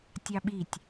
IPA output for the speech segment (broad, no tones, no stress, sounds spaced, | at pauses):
tʲ ɑ ɓ i tʲ